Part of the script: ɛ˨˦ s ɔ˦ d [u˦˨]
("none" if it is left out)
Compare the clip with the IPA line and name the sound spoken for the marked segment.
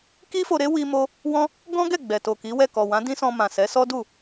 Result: u˦˨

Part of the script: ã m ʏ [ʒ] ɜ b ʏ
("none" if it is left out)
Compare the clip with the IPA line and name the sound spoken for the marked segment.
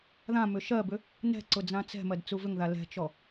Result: ʃ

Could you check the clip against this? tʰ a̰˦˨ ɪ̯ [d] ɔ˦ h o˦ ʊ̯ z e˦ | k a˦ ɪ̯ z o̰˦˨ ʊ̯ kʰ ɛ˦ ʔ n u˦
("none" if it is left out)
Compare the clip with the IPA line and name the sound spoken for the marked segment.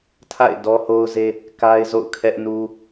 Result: d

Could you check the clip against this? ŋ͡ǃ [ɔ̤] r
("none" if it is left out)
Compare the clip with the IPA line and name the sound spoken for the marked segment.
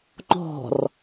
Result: ɔ̤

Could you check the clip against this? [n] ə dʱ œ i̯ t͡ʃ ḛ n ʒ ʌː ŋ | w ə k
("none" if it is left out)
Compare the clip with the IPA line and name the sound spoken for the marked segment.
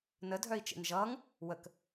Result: n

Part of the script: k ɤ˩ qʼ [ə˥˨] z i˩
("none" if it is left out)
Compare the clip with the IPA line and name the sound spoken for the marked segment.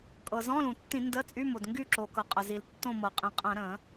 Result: ə˩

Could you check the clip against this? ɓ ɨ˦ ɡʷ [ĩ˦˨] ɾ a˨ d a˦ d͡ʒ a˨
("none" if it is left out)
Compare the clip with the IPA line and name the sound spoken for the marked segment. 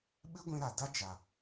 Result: ĩ˧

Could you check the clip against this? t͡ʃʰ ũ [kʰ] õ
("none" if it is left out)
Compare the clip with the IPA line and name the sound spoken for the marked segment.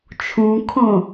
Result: kʰ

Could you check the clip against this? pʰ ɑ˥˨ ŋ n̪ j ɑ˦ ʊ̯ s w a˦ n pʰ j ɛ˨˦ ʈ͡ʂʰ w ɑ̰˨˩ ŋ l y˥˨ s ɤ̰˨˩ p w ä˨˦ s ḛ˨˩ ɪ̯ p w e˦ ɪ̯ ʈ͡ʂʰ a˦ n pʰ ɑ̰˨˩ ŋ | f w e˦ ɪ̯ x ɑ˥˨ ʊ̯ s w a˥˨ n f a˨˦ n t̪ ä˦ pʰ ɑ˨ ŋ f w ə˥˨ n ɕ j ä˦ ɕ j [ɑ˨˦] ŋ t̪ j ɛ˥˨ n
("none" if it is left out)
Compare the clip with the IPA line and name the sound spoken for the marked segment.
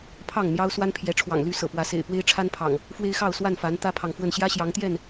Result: ɑ˨˦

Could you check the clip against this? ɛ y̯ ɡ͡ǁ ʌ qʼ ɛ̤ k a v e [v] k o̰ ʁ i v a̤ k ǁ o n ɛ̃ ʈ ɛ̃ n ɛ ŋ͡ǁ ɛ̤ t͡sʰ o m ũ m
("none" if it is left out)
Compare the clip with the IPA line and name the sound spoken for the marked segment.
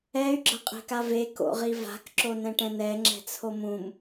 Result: none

